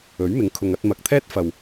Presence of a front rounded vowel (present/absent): absent